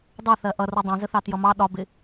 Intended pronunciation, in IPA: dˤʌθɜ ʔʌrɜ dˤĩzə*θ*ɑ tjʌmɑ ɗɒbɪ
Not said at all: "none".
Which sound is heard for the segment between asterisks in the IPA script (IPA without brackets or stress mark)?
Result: θ